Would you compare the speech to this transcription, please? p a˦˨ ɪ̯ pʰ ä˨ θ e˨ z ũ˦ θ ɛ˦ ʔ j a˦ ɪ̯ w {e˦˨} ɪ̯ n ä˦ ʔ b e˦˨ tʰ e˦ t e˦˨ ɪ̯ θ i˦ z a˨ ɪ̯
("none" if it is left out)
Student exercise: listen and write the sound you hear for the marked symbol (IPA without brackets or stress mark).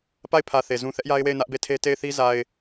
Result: e˦˨